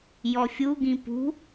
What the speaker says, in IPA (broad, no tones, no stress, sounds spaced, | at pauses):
j ɔ fʲ u ɡ ĩ p ṳ